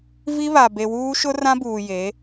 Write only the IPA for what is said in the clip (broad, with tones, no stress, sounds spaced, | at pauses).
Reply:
v i˦ β a˨ b e˨ w uː˦ ʃ ʊ˦ r ã˦ b uː˨ j e˨˦